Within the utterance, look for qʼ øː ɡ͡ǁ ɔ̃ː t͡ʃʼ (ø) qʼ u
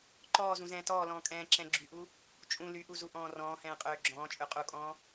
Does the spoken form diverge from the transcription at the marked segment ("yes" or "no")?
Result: no